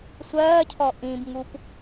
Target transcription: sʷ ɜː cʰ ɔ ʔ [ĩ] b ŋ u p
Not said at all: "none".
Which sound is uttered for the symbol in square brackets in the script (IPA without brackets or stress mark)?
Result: ĩ